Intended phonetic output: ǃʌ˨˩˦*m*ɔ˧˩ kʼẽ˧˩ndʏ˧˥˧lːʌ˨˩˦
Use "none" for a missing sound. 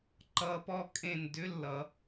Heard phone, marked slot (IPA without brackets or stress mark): p